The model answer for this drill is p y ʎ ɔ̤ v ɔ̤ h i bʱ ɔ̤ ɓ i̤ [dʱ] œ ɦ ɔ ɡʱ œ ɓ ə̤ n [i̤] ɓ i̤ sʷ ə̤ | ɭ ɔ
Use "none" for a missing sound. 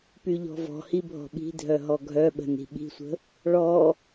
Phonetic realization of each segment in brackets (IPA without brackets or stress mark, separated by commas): dʱ, i̤